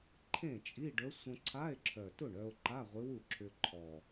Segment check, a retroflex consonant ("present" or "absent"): present